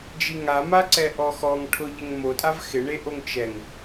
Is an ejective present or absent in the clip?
present